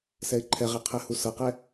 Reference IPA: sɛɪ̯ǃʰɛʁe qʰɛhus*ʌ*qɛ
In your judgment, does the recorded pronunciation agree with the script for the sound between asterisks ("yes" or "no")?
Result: yes